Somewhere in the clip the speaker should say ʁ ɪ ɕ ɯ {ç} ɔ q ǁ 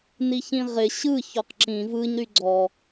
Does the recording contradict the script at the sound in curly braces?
no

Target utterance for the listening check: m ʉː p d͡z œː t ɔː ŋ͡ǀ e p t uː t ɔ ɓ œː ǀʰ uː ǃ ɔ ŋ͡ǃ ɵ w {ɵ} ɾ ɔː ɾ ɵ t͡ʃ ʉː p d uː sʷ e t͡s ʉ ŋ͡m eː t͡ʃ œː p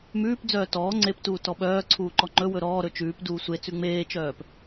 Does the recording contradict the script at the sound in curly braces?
no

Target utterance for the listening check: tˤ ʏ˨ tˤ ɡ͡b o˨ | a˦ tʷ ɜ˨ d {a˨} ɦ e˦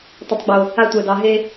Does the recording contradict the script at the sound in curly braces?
yes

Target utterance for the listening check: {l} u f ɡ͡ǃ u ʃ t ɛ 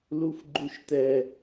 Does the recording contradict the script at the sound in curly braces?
no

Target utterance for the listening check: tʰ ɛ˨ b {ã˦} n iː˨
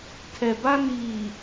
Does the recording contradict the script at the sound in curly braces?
yes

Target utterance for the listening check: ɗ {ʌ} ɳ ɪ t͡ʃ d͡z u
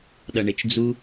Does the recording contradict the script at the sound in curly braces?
no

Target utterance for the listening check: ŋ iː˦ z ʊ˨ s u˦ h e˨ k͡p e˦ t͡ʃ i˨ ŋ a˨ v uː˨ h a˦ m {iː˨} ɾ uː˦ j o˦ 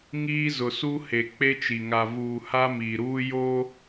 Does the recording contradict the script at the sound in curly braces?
no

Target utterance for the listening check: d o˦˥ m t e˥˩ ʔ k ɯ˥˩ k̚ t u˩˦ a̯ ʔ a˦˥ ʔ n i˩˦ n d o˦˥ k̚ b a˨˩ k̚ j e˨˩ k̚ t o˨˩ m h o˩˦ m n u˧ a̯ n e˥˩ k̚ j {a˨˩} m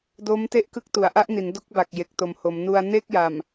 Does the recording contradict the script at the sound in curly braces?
no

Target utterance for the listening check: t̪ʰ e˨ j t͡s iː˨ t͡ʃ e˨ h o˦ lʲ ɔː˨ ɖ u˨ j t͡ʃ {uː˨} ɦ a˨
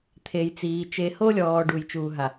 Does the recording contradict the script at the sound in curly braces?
no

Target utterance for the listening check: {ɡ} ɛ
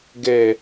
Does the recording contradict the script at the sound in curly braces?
no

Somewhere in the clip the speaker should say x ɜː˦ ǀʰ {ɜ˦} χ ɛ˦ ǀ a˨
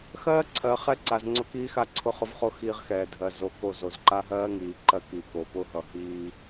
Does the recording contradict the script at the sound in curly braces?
yes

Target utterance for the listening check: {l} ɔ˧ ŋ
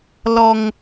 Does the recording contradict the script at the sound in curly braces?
no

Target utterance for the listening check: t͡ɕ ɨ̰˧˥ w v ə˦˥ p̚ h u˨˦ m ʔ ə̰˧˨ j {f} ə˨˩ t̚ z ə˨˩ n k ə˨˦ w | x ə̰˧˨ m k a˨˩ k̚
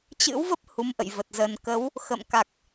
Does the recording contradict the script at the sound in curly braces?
yes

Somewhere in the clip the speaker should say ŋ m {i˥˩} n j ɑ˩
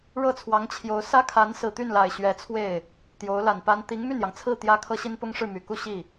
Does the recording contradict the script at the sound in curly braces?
yes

